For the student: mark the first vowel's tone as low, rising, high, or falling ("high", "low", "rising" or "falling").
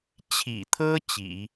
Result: low